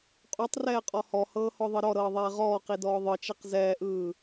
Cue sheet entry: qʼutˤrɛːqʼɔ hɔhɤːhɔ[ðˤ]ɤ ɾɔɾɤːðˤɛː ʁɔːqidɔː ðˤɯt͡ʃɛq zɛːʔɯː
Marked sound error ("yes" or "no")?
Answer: no